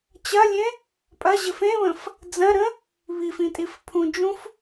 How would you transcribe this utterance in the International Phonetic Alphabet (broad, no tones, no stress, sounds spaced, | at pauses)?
t͡ɕ ɐ lʲ ẽ | pʼ ɐ ʑ ɘ f ẽ β ə̃ f | d͡z ɐ̃ ɾ ə̃ | β i f ĩ tʼ i f pʰ ũ d͡ʒ ũ f